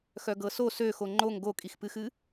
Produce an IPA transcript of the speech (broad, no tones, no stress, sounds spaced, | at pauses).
x œ ɡ ɤ s o s ø x o ŋ͡ǃ o ŋ ɡ o kʼ i x p ɨ x ɨ